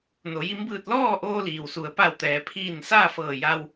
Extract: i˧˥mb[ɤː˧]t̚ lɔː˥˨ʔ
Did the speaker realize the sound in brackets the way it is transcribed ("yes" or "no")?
no